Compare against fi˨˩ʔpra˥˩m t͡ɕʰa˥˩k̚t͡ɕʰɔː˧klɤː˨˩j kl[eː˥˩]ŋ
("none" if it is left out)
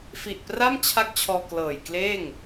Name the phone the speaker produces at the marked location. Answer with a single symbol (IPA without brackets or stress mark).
eː˥˩